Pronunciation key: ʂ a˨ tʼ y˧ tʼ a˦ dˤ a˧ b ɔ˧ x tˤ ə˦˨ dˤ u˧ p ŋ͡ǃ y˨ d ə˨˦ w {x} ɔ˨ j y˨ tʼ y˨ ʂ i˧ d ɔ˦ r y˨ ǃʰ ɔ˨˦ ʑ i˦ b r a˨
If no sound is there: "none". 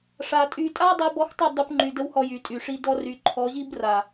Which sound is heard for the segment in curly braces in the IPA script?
h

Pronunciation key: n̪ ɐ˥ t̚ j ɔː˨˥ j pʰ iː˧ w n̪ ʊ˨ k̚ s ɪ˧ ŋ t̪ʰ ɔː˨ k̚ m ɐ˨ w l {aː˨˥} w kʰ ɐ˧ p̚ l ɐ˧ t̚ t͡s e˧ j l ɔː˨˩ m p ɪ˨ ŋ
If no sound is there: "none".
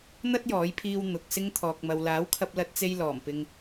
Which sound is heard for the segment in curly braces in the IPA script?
aː˨˥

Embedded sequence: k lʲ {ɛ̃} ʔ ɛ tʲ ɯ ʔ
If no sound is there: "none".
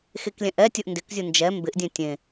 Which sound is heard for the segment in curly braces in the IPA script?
ɛ̃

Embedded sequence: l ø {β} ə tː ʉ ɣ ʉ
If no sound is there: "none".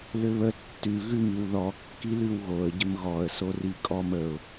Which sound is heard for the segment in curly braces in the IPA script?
β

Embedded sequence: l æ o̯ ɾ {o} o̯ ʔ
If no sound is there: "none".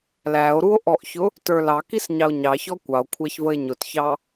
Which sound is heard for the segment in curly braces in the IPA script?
u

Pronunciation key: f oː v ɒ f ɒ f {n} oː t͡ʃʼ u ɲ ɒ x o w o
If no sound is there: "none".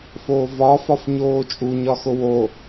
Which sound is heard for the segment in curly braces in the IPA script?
ɲ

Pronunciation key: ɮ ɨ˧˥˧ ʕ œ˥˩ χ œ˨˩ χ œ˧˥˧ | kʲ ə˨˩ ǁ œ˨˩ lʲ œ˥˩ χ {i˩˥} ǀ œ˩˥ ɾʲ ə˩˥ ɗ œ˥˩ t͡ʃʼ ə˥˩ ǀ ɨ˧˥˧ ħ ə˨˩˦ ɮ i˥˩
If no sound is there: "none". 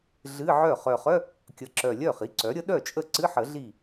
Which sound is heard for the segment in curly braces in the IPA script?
i˩˥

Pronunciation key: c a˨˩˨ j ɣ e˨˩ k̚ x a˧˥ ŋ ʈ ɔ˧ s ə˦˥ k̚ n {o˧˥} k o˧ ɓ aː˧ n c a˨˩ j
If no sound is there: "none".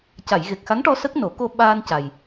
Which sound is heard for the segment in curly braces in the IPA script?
o˨˩˦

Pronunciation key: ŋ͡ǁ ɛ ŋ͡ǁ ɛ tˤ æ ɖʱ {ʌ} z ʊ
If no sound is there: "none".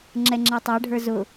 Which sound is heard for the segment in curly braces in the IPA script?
ə˞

